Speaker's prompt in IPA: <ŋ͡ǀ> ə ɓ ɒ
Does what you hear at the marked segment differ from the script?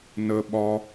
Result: yes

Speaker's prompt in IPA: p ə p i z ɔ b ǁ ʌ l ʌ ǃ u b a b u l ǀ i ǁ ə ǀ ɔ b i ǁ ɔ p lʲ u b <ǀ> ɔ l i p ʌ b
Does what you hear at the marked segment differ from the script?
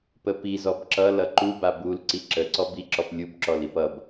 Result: yes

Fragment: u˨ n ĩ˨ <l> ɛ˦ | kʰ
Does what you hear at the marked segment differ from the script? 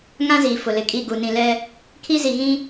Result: no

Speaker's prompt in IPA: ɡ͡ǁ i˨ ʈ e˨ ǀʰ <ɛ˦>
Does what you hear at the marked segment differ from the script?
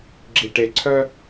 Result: yes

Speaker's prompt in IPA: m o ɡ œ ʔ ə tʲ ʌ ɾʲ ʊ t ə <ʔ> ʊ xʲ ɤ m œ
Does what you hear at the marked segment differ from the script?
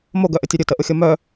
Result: no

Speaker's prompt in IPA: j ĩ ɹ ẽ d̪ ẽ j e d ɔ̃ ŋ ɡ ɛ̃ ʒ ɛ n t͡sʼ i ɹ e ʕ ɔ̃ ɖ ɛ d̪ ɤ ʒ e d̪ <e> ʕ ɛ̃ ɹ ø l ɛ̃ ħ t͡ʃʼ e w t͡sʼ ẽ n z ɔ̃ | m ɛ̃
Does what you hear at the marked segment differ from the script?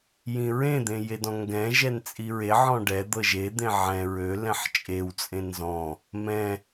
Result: yes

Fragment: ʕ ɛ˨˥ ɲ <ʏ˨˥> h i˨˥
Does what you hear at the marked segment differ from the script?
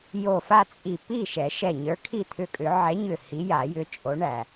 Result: yes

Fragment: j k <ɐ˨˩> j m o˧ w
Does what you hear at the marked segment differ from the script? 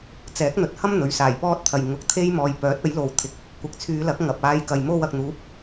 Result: yes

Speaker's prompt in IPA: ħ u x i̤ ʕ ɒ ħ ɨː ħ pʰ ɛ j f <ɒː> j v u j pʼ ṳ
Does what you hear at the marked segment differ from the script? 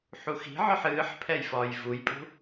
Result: no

